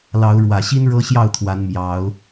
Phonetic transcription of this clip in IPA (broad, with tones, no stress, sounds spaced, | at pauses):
l ɑ˨˦ ʊ̯ ɻ w ä˨˩ ɕ i˦ n ɻ ɤ˦ ɕ j ɑ˥˨ ʊ̯ t̪ʰ w a˨˦ n m j ɑ˨˦ ʊ̯